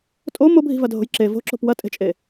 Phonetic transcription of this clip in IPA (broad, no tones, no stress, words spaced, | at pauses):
tʼo mobʱi̤vɐdʱo̤j ǁe vo̤ǁo̤p wɐtʼe̤t͡ʃʼe